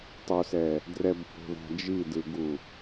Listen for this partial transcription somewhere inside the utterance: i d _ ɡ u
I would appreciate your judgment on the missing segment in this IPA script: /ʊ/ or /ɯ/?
ɯ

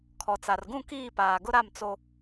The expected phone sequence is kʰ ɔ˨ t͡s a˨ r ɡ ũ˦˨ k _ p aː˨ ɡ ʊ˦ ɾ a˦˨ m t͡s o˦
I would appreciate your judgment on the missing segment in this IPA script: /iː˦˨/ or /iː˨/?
iː˦˨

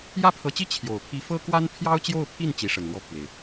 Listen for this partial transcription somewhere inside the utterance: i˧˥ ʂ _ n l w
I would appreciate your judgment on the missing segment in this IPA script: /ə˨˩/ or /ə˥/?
ə˨˩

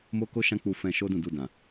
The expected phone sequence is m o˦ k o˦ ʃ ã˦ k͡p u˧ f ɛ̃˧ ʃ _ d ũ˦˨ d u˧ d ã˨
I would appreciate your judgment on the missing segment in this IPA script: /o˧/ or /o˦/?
o˦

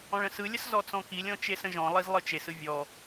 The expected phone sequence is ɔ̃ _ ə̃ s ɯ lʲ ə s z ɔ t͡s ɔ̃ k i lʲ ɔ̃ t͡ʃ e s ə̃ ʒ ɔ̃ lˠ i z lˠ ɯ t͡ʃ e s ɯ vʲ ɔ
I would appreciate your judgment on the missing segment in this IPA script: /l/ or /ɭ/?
ɭ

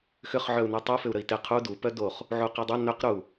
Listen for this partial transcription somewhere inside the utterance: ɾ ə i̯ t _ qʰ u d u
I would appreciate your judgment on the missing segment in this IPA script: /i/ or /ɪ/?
ɪ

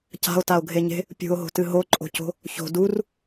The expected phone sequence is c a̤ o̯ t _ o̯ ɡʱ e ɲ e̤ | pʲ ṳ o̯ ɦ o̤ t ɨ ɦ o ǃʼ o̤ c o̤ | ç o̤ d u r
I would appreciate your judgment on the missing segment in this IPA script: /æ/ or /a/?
a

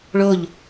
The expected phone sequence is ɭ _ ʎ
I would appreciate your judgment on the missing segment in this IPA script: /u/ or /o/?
o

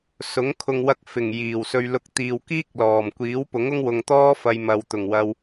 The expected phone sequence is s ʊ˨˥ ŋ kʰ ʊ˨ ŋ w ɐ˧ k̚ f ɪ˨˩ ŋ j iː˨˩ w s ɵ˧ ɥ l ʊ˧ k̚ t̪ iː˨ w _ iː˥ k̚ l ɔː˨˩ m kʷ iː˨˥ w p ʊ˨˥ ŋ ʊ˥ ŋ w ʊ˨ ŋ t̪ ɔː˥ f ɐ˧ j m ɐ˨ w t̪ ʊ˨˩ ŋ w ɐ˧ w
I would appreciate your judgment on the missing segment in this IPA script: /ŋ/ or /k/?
k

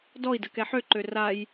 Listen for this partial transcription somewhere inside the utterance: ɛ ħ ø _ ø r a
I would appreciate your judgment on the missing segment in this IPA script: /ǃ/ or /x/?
ǃ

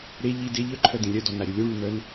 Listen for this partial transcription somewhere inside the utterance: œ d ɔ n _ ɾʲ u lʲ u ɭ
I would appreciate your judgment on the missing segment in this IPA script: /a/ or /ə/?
a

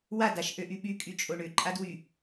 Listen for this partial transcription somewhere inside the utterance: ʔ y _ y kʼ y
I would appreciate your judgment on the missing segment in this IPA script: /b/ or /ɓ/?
ɓ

